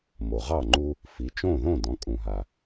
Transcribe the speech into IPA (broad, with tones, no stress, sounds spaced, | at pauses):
m o˩ ʁ ɑ˥˩ ŋ͡ǃ u˦ | f i˩˧ t͡ʃ õ˥˩ ð õ˥˩ d ɔ̃˩˧ kʼ ũ˩ ɦ a˩